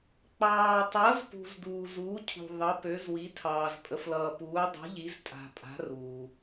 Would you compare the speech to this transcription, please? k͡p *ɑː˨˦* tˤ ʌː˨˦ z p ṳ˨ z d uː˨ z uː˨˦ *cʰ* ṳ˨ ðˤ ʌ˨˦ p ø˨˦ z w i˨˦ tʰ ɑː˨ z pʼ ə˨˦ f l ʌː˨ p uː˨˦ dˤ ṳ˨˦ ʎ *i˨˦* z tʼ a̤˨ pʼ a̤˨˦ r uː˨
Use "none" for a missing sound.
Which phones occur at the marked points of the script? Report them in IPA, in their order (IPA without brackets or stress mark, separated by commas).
ɑː˨, cʰ, i˨˦